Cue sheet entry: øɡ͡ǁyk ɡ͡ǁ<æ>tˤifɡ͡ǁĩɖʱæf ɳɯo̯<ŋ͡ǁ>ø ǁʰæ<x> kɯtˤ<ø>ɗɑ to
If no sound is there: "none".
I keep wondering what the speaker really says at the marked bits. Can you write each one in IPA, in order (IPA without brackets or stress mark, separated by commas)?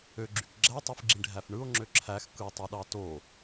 æ, ŋ͡ǁ, x, ø